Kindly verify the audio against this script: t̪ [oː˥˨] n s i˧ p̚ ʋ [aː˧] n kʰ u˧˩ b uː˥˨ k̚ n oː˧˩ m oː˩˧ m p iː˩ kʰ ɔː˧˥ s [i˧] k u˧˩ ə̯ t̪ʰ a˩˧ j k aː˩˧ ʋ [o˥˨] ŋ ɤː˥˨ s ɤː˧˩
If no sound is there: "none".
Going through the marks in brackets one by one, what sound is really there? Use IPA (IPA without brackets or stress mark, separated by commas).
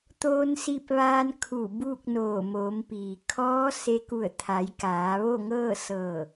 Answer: oː˧, aː˧, e˧, o˥˨